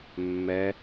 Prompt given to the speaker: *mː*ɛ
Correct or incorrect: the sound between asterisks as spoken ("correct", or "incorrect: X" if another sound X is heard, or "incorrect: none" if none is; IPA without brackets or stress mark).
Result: correct